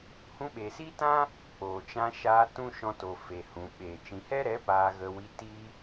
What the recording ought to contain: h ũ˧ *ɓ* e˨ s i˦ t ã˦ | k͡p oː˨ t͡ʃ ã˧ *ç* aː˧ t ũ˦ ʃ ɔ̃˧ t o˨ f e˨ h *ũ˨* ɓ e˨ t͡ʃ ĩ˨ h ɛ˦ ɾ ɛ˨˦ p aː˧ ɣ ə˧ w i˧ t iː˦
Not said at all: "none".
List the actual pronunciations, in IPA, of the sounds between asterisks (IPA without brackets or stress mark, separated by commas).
ɓ, ʃ, ũ˨